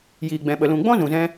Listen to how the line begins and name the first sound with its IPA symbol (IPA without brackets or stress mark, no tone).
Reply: j